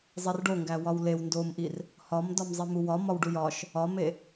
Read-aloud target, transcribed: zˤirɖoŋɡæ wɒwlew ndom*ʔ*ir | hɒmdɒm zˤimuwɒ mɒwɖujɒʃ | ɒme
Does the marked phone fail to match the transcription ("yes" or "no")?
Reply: no